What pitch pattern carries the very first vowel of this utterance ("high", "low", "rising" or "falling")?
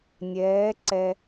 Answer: rising